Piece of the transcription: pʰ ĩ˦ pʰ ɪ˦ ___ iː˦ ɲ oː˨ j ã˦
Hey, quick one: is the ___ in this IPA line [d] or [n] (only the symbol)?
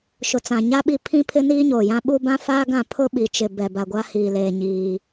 n